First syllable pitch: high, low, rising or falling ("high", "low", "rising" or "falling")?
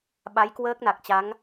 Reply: rising